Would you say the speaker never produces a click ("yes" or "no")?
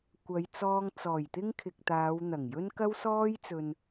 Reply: yes